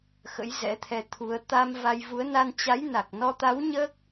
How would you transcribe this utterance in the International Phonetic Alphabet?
x ə̰˧˥ j z ɛ̰˧˥ t̪ʰ ɛ˧ t̪ʰ u˨˦ ə̯ t̪ a˧ m v a˧ j v u˨˦ ə̯ n a˧ n t͡ɕ a˨˦ j n a˨˩ k̚ n ɔ˧ t̪ a˨˦ w ɲ əː˦˥ k̚

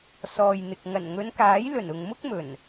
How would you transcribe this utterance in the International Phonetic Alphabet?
s ɔː˨ j n̪ ɪ˨ k̚ ŋ ɐ˨˩ n ŋ ɵ˨˧ n k aː˨˥ j l ɵ˨˩ n ʊ˨ ŋ m ʊ˥ k̚ m ɵ˨˩ n

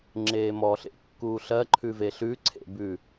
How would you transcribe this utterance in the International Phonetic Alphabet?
ŋ͡ǁ eː m ɔ ɬ ḛ kː uː ɬ ɜ ǃʰ ʉ v e ɬ ʉ ǀʰ ḛ b ʉ

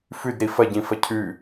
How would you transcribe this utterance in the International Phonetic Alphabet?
f ʉ d ɾ i f ɐ ɟ ĩ f ɐ cʰ ʉ

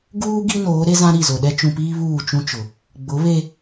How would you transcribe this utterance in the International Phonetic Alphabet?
ɡ uː˦ ɡ i˦ n oː˨˦ ɾ e˦ z ã˦ ɾ i˦˨ z o˨ ɗ ɛ˦ t͡ʃ ũ˨ p iː˦ β uː˦˨ t͡ʃ ũ˦ t͡ʃ ʊ˨ | ɡ͡b ʊ˨˦ β e˦

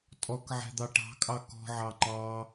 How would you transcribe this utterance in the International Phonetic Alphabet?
tʼ ɔ k ʕ ɛ̤ d̪ ɑ ʈ ɑ̤ kʼ ɑ k ɔ̤ ʕ ɑ ŋ͡ǃ ɑ

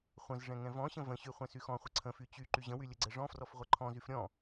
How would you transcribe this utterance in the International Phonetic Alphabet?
χʷ ə̃ z ʐ ɛ̃ ŋ ɛ̃ v ɔ̃ ɕ ə̃ v ə̃ ɕ y χʷ ɛ̃ s y x ɔ̃ χʷ ə ǀʰ ə̃ f y t͡ɕ y ǃ y ʑ ə̃ w y lʲ ə ɡ͡ǀ ɛ ʐ ɔ̃ f r ɔ f ʁʷ ɛ ǃʰ ɔ̃ z y f ɾʲ ɔ̃

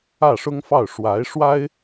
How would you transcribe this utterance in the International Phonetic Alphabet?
ä˥˩ ʂ ʊ˥ ŋ f ɑ˥˩ ʊ̯ ʂ w a˧˥ ɪ̯ ʂ w a˥ ɪ̯

